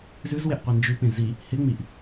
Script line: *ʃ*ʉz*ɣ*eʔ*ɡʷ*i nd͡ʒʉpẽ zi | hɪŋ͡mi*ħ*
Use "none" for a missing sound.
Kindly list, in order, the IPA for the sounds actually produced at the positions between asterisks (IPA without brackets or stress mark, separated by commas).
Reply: z, w, qʷ, ʔ